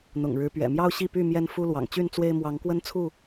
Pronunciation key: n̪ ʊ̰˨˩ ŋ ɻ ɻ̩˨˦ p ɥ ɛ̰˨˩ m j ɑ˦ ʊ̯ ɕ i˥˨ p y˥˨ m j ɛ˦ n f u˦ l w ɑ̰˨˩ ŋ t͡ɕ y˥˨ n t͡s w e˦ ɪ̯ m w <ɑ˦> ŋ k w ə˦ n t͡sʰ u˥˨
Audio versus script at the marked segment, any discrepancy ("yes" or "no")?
yes